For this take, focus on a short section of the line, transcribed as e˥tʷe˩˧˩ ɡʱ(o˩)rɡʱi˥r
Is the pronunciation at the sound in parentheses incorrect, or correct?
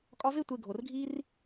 correct